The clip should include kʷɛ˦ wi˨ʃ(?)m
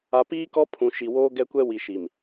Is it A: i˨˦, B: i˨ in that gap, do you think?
B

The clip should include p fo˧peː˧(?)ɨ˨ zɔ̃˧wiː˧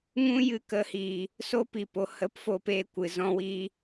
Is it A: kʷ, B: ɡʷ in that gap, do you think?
A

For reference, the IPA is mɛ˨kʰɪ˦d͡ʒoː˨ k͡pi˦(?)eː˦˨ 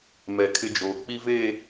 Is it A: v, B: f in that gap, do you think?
A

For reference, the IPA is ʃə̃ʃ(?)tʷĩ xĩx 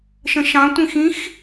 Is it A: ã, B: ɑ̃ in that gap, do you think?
B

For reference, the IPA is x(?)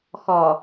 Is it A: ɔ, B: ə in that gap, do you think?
A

